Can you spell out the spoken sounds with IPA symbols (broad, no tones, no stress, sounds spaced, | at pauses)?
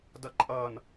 d ʌ ǃʼ ʌ n